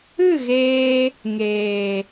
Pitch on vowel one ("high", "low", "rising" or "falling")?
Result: falling